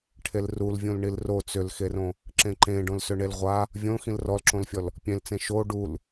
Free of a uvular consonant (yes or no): no